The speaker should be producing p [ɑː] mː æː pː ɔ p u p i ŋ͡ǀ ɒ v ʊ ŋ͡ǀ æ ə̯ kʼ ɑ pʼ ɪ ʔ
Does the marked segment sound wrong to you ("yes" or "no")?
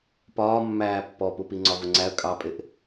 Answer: yes